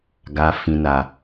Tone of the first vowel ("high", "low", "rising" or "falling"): low